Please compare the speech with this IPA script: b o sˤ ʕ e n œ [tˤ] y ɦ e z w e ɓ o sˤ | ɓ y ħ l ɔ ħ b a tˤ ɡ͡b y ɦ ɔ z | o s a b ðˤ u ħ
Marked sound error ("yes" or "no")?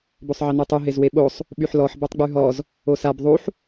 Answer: no